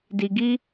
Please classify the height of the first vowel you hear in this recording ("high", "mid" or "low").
high